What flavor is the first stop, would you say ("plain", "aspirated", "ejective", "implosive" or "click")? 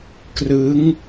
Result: plain